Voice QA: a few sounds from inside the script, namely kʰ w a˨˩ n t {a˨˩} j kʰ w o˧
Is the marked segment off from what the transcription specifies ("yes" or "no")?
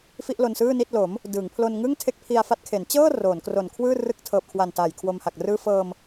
yes